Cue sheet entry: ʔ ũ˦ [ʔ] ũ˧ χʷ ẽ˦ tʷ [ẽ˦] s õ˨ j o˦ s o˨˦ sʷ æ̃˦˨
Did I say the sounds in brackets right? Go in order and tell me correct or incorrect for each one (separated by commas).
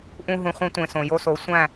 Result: incorrect, incorrect